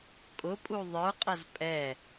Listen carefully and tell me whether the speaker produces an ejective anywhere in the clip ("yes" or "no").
yes